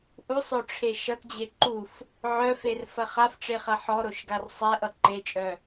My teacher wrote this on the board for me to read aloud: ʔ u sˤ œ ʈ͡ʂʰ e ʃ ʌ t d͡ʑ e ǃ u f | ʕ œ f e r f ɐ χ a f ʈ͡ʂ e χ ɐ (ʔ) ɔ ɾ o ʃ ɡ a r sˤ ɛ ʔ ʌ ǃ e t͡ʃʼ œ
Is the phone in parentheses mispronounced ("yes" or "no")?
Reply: yes